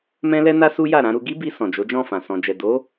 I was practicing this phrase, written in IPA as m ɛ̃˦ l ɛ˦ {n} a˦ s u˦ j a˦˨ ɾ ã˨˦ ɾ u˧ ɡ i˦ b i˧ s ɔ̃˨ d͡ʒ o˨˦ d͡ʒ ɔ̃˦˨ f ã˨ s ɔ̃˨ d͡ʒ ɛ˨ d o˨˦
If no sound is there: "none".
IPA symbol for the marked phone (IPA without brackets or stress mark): n